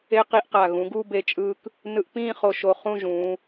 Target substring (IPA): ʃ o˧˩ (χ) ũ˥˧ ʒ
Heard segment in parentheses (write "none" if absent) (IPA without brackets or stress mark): χ